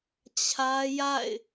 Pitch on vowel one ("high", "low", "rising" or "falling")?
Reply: high